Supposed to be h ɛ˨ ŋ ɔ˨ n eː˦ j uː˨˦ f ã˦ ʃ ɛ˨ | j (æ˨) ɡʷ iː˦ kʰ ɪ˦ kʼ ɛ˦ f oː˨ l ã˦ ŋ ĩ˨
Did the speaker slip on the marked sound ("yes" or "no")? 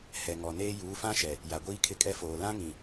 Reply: yes